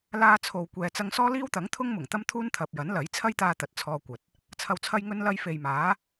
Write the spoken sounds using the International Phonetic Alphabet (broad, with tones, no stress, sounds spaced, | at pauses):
l aː˧ t͡sʰ o˨ w kʷ ɛː˨ t͡s ɐ˧ ŋ s ɔː˥ l iː˥ w t̪ ɐ˨˥ ŋ t̪ʰ ʊ˥ ŋ m ʊ˨˩ ŋ t̪ ɐ˥ m t̪ʰ uː˥ n t̪ʰ ɐ˨ p̚ j ɐ˨˥ n l ɐ˨˥ j t͡sʰ ɐ˥ j t̪ aː˧ t̪ ɐ˨ t̚ t͡sʰ ɔː˧ kʷ ɐ˨ t̚ | t͡sʰ ɐ˨ w t͡sʰ ɐ˧ j ŋ ɵ˧ n l ɐ˧ j f e˨ j m aː˨˥